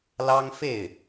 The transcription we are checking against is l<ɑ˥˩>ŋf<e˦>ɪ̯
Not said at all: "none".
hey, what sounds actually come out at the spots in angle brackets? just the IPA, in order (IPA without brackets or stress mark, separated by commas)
ɑ˥, e˥˩